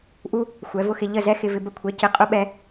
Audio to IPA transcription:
ʔ u˦ | xʷ ɛ˨˦ v ʊ˦ x ɪ˧ ʎ ə˦˨ z ɛ˦ x ɪ˧ v ɪ˧ b ə˧ kʷʰ ɛ˨˦ c ɪ˧ qʼ ʊ˦ ɓ ɛ˧

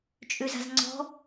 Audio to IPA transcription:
t͡ʃʼ ʉ z a̤ z ŋ͡ǀ ɔ̤

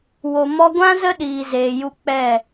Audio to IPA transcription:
w o˧ m ɔ˦ ɡʷ ã˦ z ə˦ ɗ iː˧ z eː˧ j u˦ k͡p ɛ˦˨

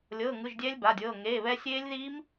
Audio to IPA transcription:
lʲ ɤː˧˥˧ ŋ ɯ˧˥˧ ʒ dʲ ɛ˦˥ lʲ b a˧˥˧ dʲ ɤː˧˥˧ ŋ eː˧˥˧ β ɛ˦˥ sʲ eː˦˥ lʲ ð iː˦˥ m

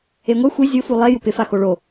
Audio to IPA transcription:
e ŋʷ e xʷ i zʲ ʊ f u lˠ e j u p ɪ f a x o ɭ o

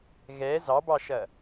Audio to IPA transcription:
ɣ ɛ z ɑ b ɑ ʃ ɐ

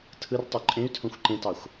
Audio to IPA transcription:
tʰ ɯ r tˤ y ǃʼ ẽ y̯ tʰ õ xʷ ǃ ẽ t ɑ xʷ

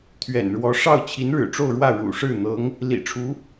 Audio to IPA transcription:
t̪ʰ ɥ ɛ̰˨˩ n ɻ w ɔ˧˥ ʂ ɑ˥˩ ʊ̯ t͡ɕʰ i˧˥ n ɻ ɻ̩˨˩ ʈ͡ʂ o˥˧ ʊ̯ ɻ w ä˥˩ ɻ ṵ˨˩ ʂ ɻ̩˥˩ n̪ ɤ˧˥ ŋ | l ḭ˨˩ ʈ͡ʂʰ u˧˥

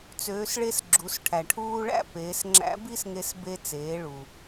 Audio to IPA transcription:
t͡s øː˩˧ s ɭ e˧ s ɡ͡ǁ u˩˧ s ʈʰ æ˩ ʈʰ uː˧ ɭ æ̰˥ p eː˩˧ s ŋ͡ǁ æ̰˧˥ b i˥ s ŋ e˧ s b e˧ t͡s eː˩˧ ɭ u˩

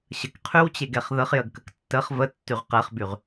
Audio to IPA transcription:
ɕ ə k qʰ y w t͡ɕ e ɡ ɛ χ ð ə χ j ə ɡ k ə k tː ə χ v ə tː y ʁ q ɛ χ b y ʁ

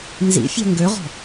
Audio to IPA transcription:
n z ḭ fʲ ɛ̤ ŋ ɡ ø ʁ ɔ̤

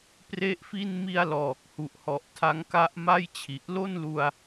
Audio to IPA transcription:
p r e˥˩ ʔ f i˥˩ n m i˧ a̯ l ɔː˨˩ k̚ h u˨˩ ʔ h ɔ˨˩ ʔ tʰ a˦˥ ŋ k a˦˥ ʔ m a˥˩ j t͡ɕʰ i˨˩ ʔ l o˥˩ n l u˧ a̯

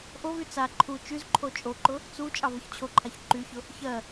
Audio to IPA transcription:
ʔ o v y t͡s a ǃʰ u t͡ʃ y z ǃʰ o t͡ʃʼ o ǃ ʊ | t͡s u t͡ʃʼ ɑ v ʊ ç t͡ɕʰ o ǃʰ a ç ǃ y ç ʊ | ç ɜ

